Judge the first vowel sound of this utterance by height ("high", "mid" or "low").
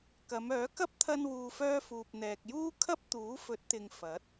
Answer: low